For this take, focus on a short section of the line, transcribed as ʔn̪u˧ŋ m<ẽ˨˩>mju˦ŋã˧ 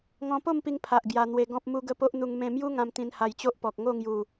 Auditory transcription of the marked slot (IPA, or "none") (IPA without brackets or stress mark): ẽ˧